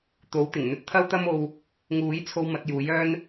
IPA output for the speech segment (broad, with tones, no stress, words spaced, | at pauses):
t̪o˨˥w t̪ɪ˨˩ŋn̪ɵ˥t̚ t̪ʰɐ˥wt̪ɐ˥mo˧w | ŋuː˨˥jt͡sʰo˧w mɐ˨˥t̚juː˨˥j œː˥n